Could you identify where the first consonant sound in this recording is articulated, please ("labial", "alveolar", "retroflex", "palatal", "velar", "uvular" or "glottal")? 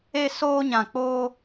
alveolar